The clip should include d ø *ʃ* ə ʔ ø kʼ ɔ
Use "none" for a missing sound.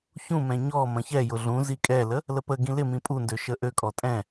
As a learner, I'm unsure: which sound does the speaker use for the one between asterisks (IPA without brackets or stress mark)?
ʃ